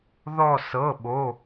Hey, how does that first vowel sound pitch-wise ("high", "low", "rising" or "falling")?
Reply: falling